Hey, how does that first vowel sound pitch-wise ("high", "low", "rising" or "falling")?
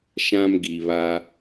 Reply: high